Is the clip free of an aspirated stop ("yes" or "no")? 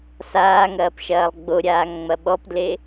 yes